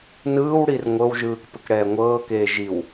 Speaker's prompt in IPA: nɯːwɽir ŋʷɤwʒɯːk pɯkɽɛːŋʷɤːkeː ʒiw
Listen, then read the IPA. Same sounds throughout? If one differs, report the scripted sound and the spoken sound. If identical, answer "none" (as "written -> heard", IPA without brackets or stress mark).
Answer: none